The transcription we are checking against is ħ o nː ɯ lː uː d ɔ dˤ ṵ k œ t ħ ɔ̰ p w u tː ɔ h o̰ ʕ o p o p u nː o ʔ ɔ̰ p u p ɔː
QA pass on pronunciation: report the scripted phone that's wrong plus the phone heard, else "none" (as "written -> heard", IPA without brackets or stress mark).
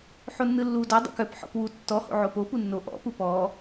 t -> p